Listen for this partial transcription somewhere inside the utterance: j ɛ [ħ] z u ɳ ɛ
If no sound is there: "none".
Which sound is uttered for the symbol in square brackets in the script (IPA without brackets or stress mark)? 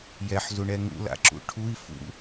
ħ